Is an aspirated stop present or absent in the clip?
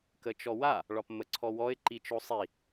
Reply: present